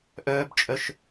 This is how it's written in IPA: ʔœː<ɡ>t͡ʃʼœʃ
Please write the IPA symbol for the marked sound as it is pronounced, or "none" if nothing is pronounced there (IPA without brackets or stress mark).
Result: b